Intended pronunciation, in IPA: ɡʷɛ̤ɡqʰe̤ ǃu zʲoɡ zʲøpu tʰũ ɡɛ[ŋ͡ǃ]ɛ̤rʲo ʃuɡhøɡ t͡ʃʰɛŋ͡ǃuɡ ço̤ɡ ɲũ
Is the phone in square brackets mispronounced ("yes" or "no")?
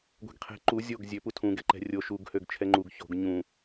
yes